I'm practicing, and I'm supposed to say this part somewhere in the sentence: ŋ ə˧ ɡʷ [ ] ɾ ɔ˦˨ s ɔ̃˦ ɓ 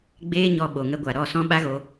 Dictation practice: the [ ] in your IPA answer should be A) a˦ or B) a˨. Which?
B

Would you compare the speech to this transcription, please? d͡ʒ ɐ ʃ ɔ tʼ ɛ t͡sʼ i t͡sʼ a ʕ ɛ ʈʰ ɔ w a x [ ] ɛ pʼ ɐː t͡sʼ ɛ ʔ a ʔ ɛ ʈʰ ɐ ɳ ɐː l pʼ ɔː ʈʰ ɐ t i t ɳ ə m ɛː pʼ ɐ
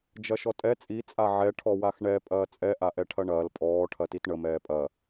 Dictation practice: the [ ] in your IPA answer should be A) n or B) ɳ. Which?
B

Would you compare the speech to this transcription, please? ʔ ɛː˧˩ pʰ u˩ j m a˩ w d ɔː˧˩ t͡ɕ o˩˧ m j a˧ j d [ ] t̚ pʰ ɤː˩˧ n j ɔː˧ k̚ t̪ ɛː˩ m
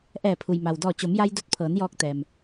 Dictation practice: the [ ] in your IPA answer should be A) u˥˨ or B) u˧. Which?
B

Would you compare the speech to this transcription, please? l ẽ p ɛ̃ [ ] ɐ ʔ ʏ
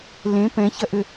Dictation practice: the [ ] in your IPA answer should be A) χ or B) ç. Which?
B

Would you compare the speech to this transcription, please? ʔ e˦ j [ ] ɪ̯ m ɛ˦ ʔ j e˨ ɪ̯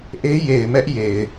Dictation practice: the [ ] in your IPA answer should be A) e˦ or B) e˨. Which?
B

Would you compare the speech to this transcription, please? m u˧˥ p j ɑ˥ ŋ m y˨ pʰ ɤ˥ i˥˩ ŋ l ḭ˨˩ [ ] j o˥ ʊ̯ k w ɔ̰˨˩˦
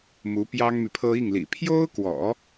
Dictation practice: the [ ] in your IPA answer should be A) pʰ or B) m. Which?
A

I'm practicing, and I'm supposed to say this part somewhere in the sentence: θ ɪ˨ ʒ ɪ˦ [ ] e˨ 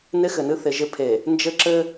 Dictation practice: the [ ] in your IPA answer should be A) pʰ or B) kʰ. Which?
A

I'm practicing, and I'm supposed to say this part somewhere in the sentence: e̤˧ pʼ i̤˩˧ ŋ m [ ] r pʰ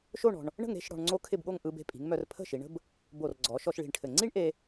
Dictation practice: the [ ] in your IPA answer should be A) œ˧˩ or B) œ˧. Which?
B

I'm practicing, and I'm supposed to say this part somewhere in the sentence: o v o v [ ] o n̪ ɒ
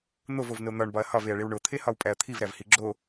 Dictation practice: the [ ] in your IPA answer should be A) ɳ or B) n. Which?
B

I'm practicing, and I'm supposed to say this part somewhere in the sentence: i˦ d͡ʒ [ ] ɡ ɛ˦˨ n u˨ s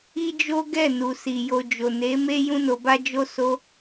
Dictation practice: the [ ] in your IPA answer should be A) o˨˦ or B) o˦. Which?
B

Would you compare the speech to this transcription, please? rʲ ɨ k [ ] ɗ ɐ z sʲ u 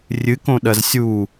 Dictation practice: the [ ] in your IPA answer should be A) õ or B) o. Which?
A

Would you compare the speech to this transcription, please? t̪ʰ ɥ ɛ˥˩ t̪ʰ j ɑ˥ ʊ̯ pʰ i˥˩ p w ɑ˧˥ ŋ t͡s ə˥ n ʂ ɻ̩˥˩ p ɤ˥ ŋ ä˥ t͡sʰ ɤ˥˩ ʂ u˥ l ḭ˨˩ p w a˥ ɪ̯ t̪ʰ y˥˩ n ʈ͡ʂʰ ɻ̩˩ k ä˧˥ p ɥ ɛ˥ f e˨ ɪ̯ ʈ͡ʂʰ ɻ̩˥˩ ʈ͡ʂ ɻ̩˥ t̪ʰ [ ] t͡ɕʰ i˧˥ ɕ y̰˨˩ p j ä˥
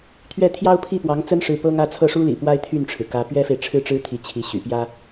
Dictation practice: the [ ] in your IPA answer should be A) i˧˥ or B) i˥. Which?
A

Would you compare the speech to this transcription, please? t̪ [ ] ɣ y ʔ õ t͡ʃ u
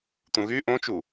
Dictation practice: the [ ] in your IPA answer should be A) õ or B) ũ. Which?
B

